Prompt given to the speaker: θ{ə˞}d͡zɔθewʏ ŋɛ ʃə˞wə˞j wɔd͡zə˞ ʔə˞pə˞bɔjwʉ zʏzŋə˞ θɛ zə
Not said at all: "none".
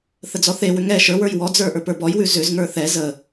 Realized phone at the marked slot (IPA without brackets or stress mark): ə